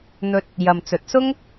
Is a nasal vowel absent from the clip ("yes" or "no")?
yes